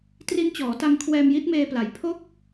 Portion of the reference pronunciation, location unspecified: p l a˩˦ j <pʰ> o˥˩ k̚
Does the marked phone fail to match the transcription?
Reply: no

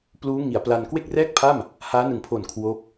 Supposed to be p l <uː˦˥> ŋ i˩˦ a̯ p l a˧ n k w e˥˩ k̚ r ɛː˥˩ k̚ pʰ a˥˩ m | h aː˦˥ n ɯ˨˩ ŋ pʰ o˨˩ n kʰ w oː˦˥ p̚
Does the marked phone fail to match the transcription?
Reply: no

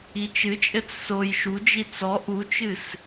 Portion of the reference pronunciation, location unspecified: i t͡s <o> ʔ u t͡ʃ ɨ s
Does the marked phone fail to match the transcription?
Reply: yes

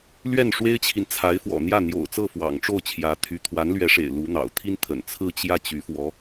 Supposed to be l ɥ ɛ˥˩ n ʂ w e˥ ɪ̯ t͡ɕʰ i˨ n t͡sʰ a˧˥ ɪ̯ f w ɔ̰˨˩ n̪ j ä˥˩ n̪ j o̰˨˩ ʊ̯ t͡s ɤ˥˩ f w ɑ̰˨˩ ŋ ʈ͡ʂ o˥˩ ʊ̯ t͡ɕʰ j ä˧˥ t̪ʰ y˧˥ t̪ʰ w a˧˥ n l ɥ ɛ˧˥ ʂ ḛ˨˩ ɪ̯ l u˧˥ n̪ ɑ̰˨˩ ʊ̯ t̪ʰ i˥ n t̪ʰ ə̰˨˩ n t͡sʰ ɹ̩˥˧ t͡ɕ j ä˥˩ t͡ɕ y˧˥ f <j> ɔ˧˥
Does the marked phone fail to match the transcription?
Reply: yes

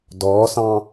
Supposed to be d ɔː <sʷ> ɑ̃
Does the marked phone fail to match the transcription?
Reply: yes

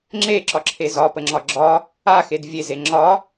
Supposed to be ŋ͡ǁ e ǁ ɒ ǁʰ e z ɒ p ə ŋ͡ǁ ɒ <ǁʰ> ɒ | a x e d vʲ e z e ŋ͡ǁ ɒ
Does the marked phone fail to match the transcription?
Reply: yes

